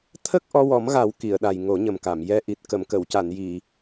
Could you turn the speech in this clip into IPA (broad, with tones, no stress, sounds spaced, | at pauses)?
t̪ʰ ə˦˥ k̚ ʔ ɔ˧ w ɔ˨˩˦ m ɣ a˨˩˦ w k i˨˩˨ ə̯ ɗ a˨˩ j ŋ o˨˩˦ ɲ ə˨˩ m k a˨˩˨ m j ɛ˧˥ ʔ i˨˩ t̚ k ə˨˩˨ m k ə˨˩˨ w c a˨˩˨ n j i˨˩˨